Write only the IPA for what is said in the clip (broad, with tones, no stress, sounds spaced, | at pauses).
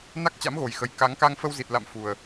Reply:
n a˦˥ k̚ t͡ɕ a̰˧˥ m ɣ o˨˩ j x ə˨˩ j k a˨˦ ŋ k a˧ ŋ f ə˧ w z i˨˩ t̚ l a̰˧˨ m f u˨˩ ə̯